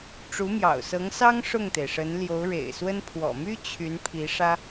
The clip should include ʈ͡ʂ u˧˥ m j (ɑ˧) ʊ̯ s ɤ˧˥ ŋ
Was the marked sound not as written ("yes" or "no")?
yes